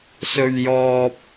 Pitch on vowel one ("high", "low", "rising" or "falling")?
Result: high